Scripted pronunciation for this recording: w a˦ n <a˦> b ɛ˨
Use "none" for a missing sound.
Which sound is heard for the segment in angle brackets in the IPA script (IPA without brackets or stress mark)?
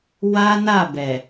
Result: a˦˨